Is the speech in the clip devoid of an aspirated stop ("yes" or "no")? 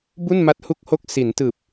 yes